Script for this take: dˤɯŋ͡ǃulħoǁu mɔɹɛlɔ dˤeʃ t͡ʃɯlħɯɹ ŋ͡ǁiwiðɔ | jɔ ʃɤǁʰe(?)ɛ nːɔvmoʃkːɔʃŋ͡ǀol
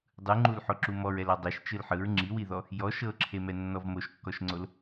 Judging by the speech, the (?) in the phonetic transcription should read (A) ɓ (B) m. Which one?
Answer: B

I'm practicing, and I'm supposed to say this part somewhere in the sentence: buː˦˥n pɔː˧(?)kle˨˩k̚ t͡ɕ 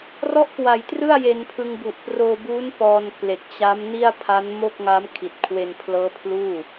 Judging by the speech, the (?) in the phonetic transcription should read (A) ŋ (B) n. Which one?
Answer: B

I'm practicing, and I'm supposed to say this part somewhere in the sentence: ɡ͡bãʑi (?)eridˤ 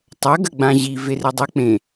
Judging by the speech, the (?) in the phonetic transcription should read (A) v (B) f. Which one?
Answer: A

